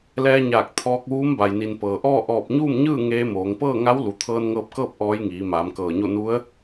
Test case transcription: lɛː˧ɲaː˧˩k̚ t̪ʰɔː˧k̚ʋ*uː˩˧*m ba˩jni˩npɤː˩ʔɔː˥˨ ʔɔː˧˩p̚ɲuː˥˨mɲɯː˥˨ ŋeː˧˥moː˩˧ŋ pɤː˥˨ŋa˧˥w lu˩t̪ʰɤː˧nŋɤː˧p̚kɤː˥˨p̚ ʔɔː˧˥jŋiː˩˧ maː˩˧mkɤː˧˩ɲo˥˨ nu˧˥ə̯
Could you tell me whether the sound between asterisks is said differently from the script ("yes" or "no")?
yes